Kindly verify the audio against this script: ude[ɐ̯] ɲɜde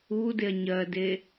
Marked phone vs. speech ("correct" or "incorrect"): correct